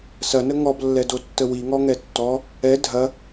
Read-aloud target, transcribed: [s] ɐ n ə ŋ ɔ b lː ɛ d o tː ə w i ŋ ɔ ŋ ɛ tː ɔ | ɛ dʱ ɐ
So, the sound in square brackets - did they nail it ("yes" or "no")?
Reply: yes